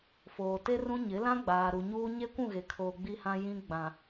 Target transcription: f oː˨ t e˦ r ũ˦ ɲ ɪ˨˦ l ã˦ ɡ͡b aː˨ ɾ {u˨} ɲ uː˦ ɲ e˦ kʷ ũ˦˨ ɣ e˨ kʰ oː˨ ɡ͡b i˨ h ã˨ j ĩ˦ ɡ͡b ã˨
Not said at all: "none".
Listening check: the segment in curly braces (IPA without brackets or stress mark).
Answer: u˨